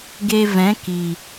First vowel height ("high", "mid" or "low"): mid